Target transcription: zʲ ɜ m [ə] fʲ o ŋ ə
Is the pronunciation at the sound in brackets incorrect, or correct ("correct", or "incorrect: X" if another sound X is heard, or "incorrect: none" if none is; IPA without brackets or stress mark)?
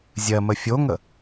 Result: correct